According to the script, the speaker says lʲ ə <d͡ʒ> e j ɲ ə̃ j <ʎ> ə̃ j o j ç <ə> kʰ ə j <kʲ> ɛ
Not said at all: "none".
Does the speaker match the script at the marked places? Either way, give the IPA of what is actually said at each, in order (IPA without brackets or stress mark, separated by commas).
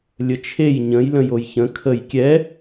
t͡ʃʰ, l, ə̃, kʲ